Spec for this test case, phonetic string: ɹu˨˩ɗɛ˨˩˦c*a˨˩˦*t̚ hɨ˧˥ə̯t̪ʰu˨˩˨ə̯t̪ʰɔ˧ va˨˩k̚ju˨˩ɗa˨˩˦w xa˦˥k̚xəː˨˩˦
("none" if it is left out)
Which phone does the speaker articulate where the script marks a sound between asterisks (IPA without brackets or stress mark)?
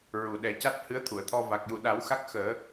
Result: a˦˥